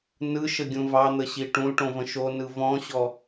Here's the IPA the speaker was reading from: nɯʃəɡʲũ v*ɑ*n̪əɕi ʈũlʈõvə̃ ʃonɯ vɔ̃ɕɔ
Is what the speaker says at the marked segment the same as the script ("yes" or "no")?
yes